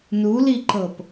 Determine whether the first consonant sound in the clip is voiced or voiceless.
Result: voiced